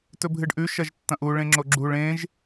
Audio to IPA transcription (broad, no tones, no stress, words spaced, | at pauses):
tɵbʱɨɖʔʉ ʃɐʒtːɐ̃ʔu ɭẽŋ͡ǁoɡ͡ǁuɭ ẽʒ